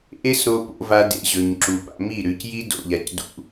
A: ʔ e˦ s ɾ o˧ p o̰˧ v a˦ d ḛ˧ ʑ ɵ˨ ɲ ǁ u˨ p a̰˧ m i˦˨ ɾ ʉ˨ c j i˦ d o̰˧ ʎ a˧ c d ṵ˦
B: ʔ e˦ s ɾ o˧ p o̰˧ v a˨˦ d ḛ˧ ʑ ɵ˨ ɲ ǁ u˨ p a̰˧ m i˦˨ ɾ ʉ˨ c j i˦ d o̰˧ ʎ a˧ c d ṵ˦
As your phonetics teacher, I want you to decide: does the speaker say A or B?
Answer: A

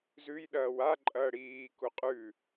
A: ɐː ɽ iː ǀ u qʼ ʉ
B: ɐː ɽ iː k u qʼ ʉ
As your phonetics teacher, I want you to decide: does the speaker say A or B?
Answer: B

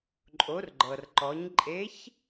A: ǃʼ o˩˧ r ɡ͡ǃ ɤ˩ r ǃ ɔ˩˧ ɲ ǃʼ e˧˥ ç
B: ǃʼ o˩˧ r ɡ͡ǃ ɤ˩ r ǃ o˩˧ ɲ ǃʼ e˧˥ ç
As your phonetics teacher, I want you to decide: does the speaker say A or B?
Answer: A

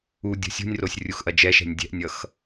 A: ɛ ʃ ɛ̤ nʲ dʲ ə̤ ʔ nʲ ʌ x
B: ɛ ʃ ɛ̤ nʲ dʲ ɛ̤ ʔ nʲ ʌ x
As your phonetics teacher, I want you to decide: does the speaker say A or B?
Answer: B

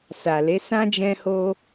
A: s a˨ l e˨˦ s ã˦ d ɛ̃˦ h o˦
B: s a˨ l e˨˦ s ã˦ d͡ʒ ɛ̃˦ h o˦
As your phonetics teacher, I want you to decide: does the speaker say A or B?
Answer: B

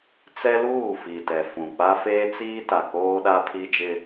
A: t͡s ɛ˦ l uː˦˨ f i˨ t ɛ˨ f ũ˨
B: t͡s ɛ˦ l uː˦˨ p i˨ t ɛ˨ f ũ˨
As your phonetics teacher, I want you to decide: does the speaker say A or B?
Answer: A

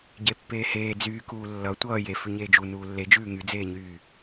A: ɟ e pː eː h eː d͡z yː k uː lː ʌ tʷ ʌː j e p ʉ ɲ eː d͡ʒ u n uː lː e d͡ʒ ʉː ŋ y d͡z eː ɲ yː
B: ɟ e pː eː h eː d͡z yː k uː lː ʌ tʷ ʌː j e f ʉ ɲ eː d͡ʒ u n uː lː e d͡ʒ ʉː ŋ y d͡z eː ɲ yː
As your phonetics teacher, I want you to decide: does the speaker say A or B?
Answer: B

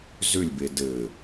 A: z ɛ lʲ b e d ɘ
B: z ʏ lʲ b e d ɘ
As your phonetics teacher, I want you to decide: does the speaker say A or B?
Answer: B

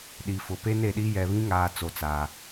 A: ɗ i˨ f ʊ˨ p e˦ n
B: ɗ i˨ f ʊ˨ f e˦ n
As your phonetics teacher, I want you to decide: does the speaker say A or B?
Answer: A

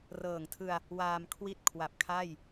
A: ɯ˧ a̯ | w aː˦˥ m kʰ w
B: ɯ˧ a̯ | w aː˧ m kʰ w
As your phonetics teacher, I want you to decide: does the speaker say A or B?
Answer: B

